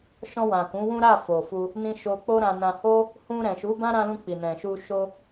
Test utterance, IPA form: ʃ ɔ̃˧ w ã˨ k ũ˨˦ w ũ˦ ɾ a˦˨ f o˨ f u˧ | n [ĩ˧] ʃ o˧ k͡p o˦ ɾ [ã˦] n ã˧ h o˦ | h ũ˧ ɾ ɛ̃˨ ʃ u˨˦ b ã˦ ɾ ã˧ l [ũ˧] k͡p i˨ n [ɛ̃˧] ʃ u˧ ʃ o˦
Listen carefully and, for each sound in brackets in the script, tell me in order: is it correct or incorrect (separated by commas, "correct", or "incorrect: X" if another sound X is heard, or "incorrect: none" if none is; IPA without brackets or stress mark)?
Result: correct, incorrect: ã˧, correct, incorrect: ɛ̃˨